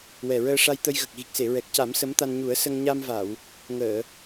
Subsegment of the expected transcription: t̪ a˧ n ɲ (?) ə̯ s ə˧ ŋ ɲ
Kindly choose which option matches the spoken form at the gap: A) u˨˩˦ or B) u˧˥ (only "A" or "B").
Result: A